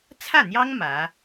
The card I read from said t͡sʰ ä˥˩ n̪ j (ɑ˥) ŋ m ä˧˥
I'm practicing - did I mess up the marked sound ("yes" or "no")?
no